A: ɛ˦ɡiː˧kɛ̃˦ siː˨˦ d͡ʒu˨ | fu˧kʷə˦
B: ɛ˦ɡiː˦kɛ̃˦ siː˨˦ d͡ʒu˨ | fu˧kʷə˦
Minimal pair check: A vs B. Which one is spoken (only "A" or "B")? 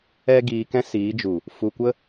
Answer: A